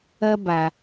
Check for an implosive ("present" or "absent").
absent